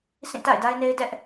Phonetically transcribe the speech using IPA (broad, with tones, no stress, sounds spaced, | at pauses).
s ĩ˦˨ t a̰˦˨ ɪ̯ d a˦ ɪ̯ n e˦ ɪ̯ d ɛ˦ ʔ